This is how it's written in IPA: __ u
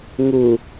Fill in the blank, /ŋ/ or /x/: ŋ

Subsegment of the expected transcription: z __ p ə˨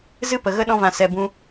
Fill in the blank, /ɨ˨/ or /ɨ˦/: ɨ˦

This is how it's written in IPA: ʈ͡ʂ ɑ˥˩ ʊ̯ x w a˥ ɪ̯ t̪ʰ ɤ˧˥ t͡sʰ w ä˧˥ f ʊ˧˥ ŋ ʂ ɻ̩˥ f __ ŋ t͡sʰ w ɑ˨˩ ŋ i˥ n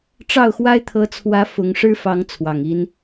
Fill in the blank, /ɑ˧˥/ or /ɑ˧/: ɑ˧˥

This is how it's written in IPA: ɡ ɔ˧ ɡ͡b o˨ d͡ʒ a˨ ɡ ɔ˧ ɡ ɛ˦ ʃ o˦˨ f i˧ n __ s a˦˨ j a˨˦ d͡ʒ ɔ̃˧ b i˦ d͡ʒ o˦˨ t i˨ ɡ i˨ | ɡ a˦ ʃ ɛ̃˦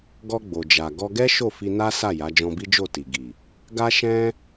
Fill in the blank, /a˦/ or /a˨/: a˦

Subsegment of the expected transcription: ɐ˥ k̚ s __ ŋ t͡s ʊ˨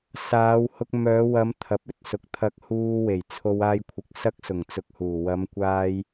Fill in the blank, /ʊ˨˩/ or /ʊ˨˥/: ʊ˨˩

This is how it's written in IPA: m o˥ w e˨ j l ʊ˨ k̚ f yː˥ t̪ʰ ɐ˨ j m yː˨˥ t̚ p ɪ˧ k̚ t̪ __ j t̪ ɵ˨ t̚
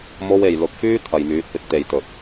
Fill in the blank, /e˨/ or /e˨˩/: e˨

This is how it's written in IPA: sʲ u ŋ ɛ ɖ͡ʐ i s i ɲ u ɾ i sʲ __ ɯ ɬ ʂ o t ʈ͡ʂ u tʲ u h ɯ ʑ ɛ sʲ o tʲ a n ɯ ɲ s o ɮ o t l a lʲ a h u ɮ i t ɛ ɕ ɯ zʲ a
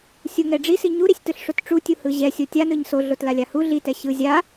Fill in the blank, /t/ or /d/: t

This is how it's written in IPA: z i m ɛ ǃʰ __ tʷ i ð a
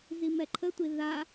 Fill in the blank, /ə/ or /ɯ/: ə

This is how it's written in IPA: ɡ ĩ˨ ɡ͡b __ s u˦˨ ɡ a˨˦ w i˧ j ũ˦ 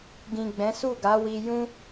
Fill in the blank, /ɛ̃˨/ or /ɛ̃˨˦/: ɛ̃˨˦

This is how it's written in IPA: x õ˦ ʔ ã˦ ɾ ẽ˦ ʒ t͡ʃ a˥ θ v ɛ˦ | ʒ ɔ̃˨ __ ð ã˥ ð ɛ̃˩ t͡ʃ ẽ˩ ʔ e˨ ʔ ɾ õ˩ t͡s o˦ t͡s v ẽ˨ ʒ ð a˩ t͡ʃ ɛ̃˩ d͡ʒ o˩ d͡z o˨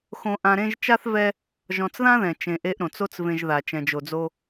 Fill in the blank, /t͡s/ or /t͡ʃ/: t͡s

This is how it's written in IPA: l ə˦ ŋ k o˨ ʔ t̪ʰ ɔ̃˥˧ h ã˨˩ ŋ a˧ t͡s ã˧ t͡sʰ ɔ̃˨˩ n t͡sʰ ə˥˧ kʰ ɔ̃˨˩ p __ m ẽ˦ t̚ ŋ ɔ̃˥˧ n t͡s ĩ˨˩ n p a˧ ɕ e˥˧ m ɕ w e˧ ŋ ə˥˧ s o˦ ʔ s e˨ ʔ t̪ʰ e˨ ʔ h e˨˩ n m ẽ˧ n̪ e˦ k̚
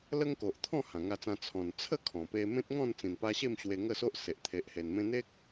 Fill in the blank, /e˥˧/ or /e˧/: e˧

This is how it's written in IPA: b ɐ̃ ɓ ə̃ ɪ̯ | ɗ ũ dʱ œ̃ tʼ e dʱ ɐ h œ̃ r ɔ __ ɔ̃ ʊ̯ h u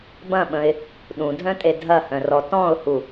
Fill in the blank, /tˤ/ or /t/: t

